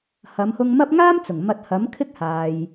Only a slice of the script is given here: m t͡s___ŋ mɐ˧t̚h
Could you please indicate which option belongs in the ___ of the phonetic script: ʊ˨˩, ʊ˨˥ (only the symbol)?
ʊ˨˩